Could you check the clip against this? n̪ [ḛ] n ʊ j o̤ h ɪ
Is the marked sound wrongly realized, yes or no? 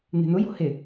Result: yes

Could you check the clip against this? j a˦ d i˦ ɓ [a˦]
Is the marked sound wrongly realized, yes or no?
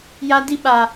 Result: no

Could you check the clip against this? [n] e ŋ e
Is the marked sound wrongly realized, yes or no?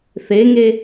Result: yes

